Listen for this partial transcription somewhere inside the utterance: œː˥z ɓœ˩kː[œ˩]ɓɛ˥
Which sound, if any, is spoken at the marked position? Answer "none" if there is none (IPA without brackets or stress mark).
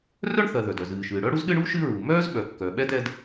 œ˩